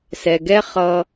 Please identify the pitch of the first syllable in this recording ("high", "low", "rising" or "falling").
low